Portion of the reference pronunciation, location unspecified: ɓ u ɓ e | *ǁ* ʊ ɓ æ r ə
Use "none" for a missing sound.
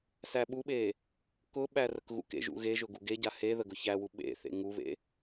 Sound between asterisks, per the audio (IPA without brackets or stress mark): k